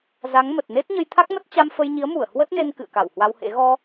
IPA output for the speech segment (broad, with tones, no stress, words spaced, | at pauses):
za˨˦ŋmə˨˩t̚ne˦˥t̚ ɲə˧jt̪ʰa˦˥k̚mə˦˥t̚ t͡ɕa˧mfə˧jɲi˨˦ə̯mu˧˩ə̯ hwə˦˥t̚ne˧n kɨ̰˧˨ə̯ka˧˩whwa˧whḛ˧˥ ɣɔ˧